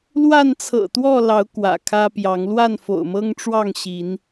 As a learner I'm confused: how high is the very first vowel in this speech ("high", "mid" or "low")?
low